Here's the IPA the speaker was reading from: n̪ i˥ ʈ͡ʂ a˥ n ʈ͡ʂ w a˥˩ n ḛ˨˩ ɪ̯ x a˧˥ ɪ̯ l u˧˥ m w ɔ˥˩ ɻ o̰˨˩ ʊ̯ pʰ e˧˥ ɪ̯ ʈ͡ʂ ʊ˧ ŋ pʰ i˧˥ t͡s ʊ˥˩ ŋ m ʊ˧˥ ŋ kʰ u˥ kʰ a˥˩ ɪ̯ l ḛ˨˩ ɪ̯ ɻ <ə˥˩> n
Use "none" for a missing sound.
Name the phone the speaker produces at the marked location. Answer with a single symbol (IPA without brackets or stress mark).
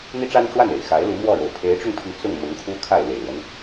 ə˦